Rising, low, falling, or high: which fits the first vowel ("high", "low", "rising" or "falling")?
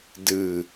falling